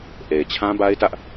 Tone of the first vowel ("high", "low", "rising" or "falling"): low